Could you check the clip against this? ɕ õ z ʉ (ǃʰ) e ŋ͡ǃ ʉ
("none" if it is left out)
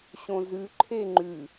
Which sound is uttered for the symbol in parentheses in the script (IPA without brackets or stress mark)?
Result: ǃʰ